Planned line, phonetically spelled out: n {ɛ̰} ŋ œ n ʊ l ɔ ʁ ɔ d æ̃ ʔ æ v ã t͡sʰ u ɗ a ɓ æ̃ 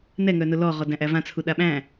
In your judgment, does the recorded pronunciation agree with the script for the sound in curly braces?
no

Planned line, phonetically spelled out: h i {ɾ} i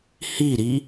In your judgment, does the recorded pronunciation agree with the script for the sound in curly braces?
yes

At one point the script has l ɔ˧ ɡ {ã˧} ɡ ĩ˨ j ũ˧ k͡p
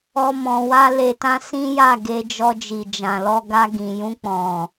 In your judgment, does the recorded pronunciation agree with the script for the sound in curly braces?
no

